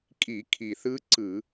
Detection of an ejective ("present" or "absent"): present